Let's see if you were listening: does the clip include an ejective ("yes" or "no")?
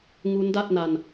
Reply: no